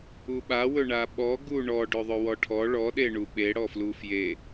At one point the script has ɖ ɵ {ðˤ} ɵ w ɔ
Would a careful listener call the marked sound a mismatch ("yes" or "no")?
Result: no